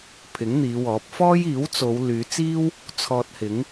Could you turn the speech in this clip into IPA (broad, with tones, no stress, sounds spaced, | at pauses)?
pʰ ɪ˨˥ ŋ n̪ iː˨˧ w ɔː˨˥ p̚ f ɔː˥ j iː˨˥ w t͡s o˨˧ w l yː˨˧ t͡s iː˥ w | t͡sʰ ɔː˧ t̚ h ɪ˨˥ ŋ